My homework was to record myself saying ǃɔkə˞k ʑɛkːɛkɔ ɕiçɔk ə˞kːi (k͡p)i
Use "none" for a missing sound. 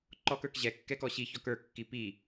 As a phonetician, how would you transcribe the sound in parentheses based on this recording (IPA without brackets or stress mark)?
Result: p